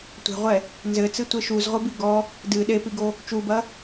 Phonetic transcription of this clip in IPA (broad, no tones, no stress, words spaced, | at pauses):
tʷe̤ʁʷɛ | nzɘt͡sɨtʷe ʃuzʁʷɨbi ɡɔ | dɨ ɗepiɡo | t͡ʃubɐ